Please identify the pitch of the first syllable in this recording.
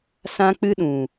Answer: high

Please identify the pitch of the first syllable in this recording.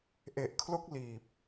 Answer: low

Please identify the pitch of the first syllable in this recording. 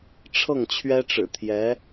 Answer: falling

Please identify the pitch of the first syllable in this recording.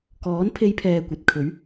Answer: rising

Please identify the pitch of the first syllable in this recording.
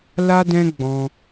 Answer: high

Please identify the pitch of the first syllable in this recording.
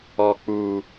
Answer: low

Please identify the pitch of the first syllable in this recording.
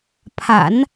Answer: low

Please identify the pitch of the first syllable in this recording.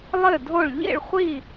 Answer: falling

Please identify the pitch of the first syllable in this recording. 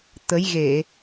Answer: rising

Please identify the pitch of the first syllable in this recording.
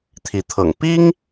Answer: rising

